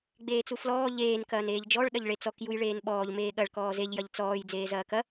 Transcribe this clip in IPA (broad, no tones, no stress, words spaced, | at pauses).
ɡ͡beːt͡suflɔː ʎeːn kɐːneːʎd͡ʒɔɭ ɗɐʎɭet͡sɔk jujɭeːnɓɔːʎ meːɠɐɭ kɔːzeʎ jɐʎt͡sɔːj d͡zeːzɐːkɐ